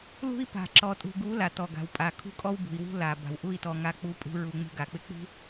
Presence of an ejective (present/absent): present